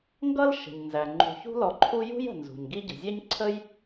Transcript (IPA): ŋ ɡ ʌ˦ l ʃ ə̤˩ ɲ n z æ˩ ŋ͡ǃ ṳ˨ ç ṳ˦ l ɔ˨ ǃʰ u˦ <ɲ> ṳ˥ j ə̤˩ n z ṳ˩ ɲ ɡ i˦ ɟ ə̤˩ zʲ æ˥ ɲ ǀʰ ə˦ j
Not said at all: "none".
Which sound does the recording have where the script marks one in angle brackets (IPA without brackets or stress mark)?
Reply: j